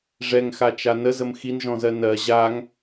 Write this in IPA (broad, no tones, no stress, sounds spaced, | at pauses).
ʐ ɛ ŋ x a t͡ʃ a n ə z ə m x i n ʒ ɔ̃ z ɜ n ɜ ʑ a ŋ